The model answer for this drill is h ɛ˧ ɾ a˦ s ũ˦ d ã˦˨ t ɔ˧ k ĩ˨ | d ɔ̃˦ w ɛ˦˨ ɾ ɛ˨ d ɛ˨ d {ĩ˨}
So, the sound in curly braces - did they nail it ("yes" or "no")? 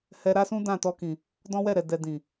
yes